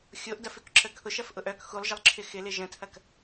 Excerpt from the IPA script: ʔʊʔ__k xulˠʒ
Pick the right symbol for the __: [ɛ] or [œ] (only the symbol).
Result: œ